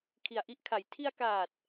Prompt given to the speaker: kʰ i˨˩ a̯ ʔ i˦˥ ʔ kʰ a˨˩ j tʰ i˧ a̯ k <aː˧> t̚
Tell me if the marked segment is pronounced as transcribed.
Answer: no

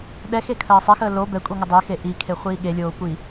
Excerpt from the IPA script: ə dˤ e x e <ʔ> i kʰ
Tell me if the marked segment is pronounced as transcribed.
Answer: yes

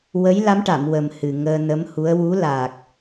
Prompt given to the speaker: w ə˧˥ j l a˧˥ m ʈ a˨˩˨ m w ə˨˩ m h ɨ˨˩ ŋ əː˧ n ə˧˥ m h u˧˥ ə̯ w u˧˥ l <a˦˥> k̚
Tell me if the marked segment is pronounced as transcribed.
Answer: no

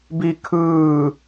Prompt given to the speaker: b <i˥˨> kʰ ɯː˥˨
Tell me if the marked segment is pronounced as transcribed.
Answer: yes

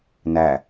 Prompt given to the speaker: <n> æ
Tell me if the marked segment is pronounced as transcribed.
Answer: yes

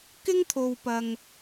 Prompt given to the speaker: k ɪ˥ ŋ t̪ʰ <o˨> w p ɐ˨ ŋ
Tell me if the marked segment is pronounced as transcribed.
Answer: yes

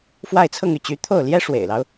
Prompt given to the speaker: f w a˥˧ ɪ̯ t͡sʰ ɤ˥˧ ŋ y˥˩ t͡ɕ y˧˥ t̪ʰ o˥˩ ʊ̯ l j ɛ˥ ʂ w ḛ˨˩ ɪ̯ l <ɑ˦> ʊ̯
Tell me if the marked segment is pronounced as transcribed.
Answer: yes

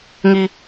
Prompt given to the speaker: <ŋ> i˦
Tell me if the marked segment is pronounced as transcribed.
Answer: yes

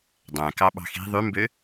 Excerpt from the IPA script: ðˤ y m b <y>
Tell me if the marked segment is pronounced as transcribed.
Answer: no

